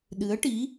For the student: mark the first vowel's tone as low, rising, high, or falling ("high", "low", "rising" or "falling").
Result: rising